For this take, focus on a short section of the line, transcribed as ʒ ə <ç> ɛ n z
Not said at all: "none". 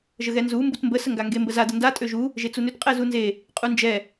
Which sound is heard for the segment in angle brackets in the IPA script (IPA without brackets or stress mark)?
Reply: ɣ